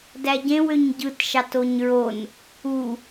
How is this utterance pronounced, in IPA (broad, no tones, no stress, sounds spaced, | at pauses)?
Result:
d æ ɟ ẽ w ø ɲ ɟ ɯ t ʃ ɑ t o ɲ ɹ o n | u